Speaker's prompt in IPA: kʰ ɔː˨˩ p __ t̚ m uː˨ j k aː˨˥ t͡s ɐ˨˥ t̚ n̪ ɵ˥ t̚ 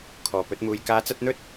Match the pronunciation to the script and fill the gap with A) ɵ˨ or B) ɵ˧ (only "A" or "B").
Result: B